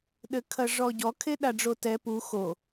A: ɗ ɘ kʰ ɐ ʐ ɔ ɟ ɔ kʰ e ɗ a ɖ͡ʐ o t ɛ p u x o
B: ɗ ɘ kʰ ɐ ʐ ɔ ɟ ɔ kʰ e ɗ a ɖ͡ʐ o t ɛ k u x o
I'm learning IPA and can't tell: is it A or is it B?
A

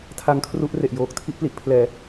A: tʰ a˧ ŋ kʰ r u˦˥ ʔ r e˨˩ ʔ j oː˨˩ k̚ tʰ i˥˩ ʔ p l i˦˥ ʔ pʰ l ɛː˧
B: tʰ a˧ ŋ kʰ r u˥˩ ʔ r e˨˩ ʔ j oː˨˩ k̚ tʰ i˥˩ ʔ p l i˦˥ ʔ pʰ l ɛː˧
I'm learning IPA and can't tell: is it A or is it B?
A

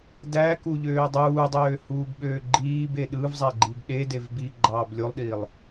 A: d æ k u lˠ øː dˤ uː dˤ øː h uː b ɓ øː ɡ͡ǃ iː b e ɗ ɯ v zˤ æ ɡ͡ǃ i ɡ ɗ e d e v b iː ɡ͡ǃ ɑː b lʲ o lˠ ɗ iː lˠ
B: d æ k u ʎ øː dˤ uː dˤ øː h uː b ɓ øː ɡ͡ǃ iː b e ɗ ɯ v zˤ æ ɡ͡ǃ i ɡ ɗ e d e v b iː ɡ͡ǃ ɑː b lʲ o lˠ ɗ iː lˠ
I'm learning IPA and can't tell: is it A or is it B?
B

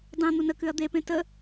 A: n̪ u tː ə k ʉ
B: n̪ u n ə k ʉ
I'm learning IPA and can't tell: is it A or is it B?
B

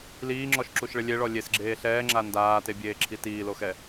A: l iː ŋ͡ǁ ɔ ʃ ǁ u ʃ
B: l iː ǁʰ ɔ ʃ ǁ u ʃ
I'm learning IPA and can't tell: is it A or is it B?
A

